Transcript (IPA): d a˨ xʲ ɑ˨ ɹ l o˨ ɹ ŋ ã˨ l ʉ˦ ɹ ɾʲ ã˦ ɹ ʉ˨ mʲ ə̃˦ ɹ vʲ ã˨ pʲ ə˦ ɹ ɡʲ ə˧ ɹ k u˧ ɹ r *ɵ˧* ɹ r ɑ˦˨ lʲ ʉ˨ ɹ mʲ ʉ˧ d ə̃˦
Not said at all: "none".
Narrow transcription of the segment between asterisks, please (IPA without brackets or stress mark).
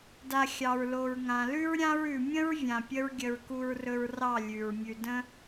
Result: ɵ˧